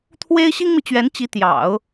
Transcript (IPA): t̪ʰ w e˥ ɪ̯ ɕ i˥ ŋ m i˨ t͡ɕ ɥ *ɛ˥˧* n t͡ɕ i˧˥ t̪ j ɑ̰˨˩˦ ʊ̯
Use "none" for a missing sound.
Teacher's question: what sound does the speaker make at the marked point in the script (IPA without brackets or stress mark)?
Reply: ɛ˧˥